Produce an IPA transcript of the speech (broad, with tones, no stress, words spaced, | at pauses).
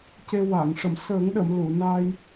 ce˧ wa˨˩˨ŋ ʂə˨˩˨msəː˨˩˦ŋɗə˨˩˨m lu˨˩˨na˧j